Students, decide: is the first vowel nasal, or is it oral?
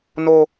oral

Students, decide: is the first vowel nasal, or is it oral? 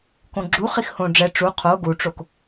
nasal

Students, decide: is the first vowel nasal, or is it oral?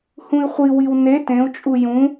nasal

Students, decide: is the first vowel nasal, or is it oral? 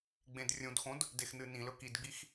nasal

